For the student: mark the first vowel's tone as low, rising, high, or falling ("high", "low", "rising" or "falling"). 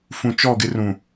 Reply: low